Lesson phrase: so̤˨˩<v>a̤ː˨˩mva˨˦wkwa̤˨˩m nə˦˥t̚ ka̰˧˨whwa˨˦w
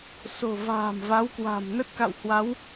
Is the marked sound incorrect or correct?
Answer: correct